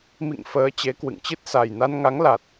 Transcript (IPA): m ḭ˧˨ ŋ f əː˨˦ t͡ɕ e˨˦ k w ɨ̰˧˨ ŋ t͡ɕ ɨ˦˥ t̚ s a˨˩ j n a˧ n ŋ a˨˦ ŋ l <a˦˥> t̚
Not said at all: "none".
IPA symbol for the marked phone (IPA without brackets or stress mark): a˨˩